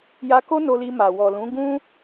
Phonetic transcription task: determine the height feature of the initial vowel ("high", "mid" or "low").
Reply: low